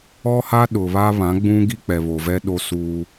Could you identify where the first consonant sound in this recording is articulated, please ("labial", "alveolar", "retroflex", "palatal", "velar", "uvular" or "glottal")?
glottal